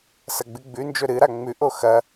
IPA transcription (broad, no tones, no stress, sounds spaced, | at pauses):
s ɐ ɡ͡b ɨ ɡ͡b ʉ n d͡ʒ ɵ ɾ ɨ ɾ a ŋ͡m ʉ ʔ o x ɐ